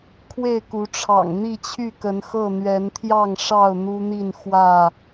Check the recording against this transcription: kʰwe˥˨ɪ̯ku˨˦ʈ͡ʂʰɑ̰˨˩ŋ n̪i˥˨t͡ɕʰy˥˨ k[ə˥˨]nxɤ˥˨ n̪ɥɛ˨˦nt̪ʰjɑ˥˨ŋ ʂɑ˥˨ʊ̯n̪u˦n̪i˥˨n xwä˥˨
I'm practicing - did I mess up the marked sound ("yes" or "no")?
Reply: yes